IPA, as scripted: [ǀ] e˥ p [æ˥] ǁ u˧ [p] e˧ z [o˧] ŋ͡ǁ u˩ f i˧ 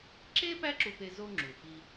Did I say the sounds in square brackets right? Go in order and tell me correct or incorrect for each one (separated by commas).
incorrect, correct, correct, correct